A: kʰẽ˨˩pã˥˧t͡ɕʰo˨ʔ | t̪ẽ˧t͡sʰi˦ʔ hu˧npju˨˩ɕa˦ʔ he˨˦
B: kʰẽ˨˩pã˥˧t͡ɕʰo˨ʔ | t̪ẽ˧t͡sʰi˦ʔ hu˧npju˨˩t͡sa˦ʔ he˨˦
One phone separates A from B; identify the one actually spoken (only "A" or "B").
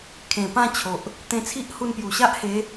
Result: A